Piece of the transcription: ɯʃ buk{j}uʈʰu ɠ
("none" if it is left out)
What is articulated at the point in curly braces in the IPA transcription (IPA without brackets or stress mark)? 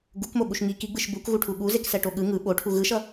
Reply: ɣ